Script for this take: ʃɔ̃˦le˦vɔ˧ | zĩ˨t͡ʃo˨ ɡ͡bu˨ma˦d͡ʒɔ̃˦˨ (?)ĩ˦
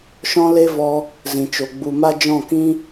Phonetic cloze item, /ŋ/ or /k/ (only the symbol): k